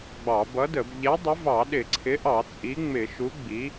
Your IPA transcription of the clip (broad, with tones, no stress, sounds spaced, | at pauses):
ɡ͡b ɑ˧˩˧ b ʌ˨˥ d ə˧˩˧ b ʎ ɛ˨˥ dˤ ɪ˨˥ v ɑ˧˩˧ ɗ ɪ˧˩˧ ǀʰ ɪ˨˥ ʔ ɑ˧˩˧ t͡sʼ i˨˥ ŋ͡m ɪ˧˩˧ ʃ u˨˥ ɡ͡b i˨˥